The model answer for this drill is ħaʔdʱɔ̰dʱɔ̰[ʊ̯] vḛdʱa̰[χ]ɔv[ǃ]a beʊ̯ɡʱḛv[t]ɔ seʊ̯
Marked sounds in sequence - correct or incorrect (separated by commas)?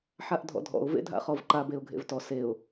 correct, correct, correct, correct